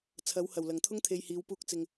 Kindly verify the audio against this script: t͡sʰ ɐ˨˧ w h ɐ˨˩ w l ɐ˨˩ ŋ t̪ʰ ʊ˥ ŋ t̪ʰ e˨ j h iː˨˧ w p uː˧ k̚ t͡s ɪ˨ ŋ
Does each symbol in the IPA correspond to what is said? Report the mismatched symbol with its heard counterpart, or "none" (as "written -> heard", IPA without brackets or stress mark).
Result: none